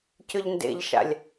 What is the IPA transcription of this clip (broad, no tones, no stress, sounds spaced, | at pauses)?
c ʏ ʎ n d ḛ ʎ ʃ a̰ lʲ